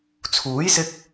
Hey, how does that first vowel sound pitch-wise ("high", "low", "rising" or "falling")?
rising